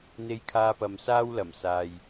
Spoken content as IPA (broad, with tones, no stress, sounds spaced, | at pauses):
n̪ e˧ j kʰ aː˧ p ɐ˨ m s aː˥ w l ɐ˨˩ m s aː˨ j